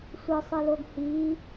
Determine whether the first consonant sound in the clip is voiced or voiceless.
voiceless